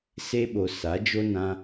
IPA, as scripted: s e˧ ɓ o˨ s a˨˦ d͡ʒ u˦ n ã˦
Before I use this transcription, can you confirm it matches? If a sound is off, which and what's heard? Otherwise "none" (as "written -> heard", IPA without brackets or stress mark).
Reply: u˦ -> o˦